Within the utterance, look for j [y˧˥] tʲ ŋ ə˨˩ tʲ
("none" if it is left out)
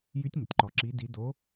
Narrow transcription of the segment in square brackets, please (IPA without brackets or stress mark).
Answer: y˧˥